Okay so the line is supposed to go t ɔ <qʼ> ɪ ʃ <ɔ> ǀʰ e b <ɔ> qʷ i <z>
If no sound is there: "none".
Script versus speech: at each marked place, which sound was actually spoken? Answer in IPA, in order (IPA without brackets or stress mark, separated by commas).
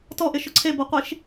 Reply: ʔ, ʊ, o, ʃ